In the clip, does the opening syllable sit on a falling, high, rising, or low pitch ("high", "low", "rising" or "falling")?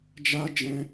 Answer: high